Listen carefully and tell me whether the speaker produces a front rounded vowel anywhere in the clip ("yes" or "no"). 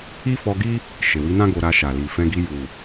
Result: no